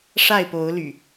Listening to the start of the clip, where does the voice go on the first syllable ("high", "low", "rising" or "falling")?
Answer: falling